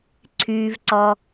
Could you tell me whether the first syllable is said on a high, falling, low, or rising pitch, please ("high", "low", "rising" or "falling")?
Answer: low